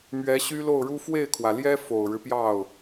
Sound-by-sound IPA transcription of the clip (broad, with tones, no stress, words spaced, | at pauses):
mɥɛ˧˥ɕy˥lo˥˩ʊ̯ɻu˥ fwe˥˩ɪ̯kʰwä˩ljɛ˥ fo˨˩ʊ̯ɻɻ̩˦pjɑ˥˩ʊ̯